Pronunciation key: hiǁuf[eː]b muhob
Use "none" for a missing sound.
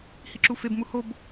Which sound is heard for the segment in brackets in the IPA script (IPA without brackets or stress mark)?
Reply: e